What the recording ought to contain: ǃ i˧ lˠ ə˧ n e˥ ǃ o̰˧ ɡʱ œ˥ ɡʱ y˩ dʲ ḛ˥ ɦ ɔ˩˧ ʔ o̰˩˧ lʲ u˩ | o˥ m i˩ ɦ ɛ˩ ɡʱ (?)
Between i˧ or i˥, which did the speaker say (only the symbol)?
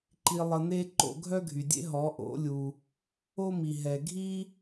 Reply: i˥